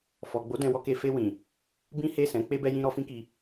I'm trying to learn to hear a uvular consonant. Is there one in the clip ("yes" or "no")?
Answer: no